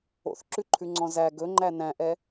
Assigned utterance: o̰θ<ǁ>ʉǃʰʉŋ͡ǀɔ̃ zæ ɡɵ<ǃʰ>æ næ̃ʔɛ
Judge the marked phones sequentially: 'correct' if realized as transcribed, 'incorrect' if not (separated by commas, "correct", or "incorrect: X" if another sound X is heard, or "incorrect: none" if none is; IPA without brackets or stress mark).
correct, incorrect: ŋ͡ǃ